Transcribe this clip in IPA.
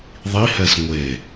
ðˤ i h ɛ s ŋʷ e

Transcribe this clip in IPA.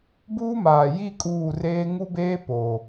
b uː˦ m aː˨ j i˦˨ kʼ uː˦˨ r eː˦ ŋ u˦ b eː˦ p oː˨

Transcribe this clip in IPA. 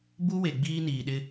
b u˦ w e˨ ɡ͡b iː˦ n iː˨ ɗ ɪ˦

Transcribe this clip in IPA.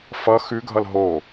f ʌ x ʉ ɡʱ ʌ l ɦ o

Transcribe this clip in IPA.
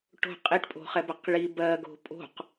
ʈ o̤ qʼ i ʈ pʼ o̤ χ ɛ b ɛ q ɭ i b ɜ ɡ o̤ pʼ o̤ q

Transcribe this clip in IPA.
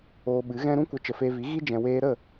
oː˧ ɓ ɨ˨˦ ɣ ɛ̃˧ ɾ ũ˦ kʷ ə˨˦ t͡ʃ ə˨ f eː˧ v i˨˦ ɣ i˦ d͡ʒ ɛ̃˧ w eː˧ ɾ ə˦˨

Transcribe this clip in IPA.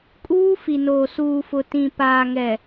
kʼ uː˦ f i˨ n oː˨ s uː˨ f ʊ˨ t ĩ˨ p aː˨ ŋ ɛ˨

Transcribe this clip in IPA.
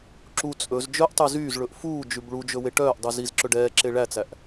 ǁ u t͡sʼ ɵ z d͡ʒ œ ʔ tˤ y z yː z ɭ ɵ ʔ f uː d͡ʒ ʉ b ɭ u d͡ʒ ɵ w e ʈ œː ʔ dˤ ʉ z i z ǁ ɵ ɖ ɛː ǁ e ɭ æ t͡s æ ʔ

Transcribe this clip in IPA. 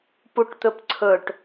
p u ʈ t̪ ɵ p ǀʰ ɵ ʈ

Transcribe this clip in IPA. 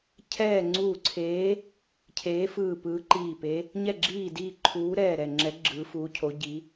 cʰ ɛː˦˨ ŋ͡ǀ uː˦˨ ǀʰ eː˧˥ | cʰ eː˧˥ f ɯː˦˨ p ɯː˧˥ ǃ iː˦˨ p e˧˥ | ɲ ɛ˦˨ ɡ͡ǁ iː˦˨ d iː˦˨ ǃʰ uː˧˥ ɾ ɛː˦˨ ɾ ɛ˦˨ ŋ͡ǁ ɛ˧˥ ɡ͡ǁ ɯː˧˥ f uː˧˥ cʰ o˧˥ ɟ i˧˥

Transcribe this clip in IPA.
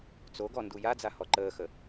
t͡s o ɡ ɔ n d u j a d͡z a h ɔ ǃ əː x ə

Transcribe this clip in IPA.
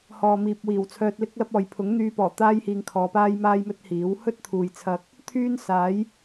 h ɔː˨ m iː˨ p̚ w iː˨˩ w t͡sʰ œː˧ t̚ l ɪ˥ k̚ l ɐ˥ p̚ ɔː˨ j pʰ ʊ˨˥ ŋ n̪ yː˧ p ɔː˨˩ t̪ aː˥ j h iː˧ ŋ kʰ ɔː˨˧ p aː˥ j m aː˥ j m ɵ˥ t̚ h iː˨˥ w h ɵ˥ t̚ t̪ʰ uː˨ j t͡sʰ ɐ˧ k̚ | t̪ʰ yː˥ n s aː˨˥ j

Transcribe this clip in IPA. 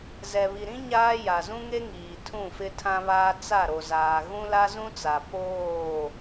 z ɛ˨ β i˨ ɾ ĩ˦ ɲ aː˦ j a˨ z ũ˦ ŋ e˦ ŋ iː˨ tʰ ũ˦˨ f ɪ˦ tʰ ã˦ β aː˦ t͡s a˦˨ ɾ o˨ z aː˨ ɣ ũ˦ l a˦ z ũ˦ t͡s a˨ p oː˦˨

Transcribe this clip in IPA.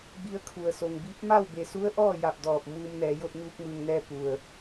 b i˧ ə̯ kʰ u˩ ə̯ s o˩ ŋ b i˧˥ p̚ m a˥˨ w b e˩ s u˧˥ ə̯ ʔ ɔː˥˨ j a˧˩ p̚ d ɔː˧˩ p̚ m uː˧ m n ɛː˩˧ j o˧ t̚ ɲ uː˧ k̚ m ɯː˩ ŋ n ɛː˧ p u˩ ə̯

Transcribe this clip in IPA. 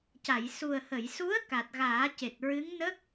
c a˨˩˨ j s u˨˩ ə̯ h ə˨˩˨ j s u˧˥ ə̯ k a˨˩ t̚ ɣ aː˨˩˦ c e˨˩ t̚ ɹ ɨ˧˥ ŋ n ə˦˥ k̚

